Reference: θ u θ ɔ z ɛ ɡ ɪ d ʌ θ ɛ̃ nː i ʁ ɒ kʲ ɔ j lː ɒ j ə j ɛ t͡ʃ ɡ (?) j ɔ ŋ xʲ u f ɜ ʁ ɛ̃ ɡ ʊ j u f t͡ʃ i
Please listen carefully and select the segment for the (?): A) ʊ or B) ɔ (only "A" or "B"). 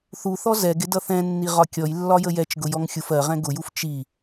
A